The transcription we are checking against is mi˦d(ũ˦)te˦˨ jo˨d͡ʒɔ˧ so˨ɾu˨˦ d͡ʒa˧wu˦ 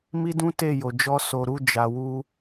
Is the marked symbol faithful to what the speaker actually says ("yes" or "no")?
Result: yes